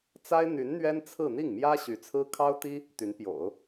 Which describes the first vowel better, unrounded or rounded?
unrounded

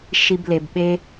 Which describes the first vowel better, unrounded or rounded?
unrounded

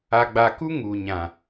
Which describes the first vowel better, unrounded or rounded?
unrounded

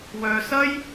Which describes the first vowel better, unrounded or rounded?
rounded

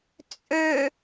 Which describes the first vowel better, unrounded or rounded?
rounded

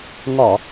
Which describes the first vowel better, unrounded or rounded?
rounded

